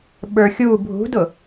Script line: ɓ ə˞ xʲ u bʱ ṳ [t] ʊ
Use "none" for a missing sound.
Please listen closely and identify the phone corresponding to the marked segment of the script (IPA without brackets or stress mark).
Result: d